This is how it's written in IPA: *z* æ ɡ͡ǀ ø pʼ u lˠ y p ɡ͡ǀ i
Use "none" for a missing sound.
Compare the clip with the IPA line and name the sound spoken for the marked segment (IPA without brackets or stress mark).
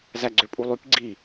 z